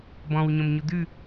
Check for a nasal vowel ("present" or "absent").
present